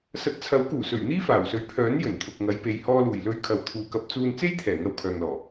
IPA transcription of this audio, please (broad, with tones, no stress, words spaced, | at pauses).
sɐ˨˥t̚t͡sʰɐ˨˥wkuː˨˩sɵ˨˩ɥ n̪iː˥faː˨˩wsɵ˨ɥ pʰœː˨˥n jɵ˨˩nt̪ʰʊ˨k̚ŋɐ˨˧j pe˨jhɔː˧luː˨˩j lɵ˧ɥ kʰɐ˨wt̪ʰuː˨kɐ˧p̚t͡suː˧n t͡se˥jt̪ʰɛː˨˩ ŋɐ˧wkʰœː˨ŋlɔː˨˩